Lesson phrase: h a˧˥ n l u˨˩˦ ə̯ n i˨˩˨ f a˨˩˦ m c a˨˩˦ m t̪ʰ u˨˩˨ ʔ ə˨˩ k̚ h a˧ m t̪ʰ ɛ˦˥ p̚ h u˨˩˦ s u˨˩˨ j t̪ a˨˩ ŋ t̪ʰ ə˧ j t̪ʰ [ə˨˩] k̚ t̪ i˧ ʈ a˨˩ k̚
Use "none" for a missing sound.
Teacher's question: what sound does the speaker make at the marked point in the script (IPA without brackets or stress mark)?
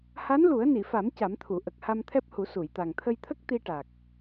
ə˦˥